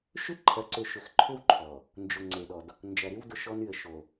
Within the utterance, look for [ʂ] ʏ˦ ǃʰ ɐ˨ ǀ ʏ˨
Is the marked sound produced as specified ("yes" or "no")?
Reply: no